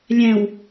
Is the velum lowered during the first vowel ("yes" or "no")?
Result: yes